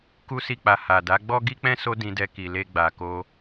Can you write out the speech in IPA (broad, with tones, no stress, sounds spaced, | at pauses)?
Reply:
k u˦ s i˦˨ k͡p a˧ h a˨ d a˨˦ ɡ͡b ɔ˦ ɡ i˦ k͡p ɛ̃˦ s o˦ d ĩ˧ d ɛ˧ k i˨ l e˧ ɡ͡b a˨ k o˧